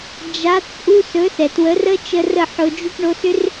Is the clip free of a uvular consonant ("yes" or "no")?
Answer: yes